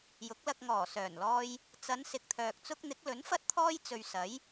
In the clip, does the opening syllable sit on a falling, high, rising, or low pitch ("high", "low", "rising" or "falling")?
rising